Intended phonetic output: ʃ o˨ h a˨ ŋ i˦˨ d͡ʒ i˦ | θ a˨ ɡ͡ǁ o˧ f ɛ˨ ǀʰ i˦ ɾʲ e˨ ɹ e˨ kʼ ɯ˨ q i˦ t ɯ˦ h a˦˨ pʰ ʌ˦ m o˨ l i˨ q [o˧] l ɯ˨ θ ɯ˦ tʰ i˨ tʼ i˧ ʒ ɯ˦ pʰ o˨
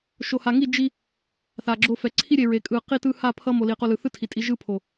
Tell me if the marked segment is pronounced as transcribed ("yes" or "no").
yes